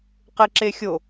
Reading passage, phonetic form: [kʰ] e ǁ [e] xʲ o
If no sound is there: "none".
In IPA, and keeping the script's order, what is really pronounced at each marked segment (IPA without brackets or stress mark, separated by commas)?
q, e